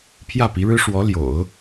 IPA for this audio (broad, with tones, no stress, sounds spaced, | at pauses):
pʰ j ä˥˩ p i˧˥ ɻ ɻ̩˥ ʂ w ɔ˧˥ l j o̰˨˩˦ ʊ̯